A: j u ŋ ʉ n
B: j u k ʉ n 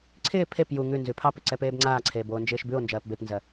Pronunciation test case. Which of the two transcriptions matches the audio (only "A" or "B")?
A